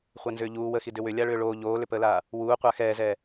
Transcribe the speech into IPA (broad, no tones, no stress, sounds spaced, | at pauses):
χʷ a n z ʏː ʎ uː w ə x i d ʏ w ʏ lʲ a ɭ ʏː ɭ oː ʎ oː l ʏ p əː l aː | w uː qʷ a x ɛː z ɛː